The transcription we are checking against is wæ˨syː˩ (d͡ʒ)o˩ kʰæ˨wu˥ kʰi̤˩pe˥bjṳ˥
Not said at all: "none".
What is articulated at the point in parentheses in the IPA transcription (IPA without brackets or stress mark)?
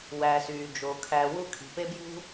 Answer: d͡ʒ